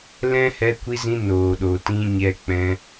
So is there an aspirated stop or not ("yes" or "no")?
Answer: no